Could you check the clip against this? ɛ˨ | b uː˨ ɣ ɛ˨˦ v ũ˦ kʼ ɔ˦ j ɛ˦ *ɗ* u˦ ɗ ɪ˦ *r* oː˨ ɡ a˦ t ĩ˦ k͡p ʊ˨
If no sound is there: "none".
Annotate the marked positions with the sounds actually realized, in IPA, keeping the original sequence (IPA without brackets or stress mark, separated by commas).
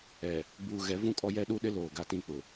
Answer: ɗ, l